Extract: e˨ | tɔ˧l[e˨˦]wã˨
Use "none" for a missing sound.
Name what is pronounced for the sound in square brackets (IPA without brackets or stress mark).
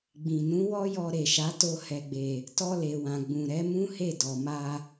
e˨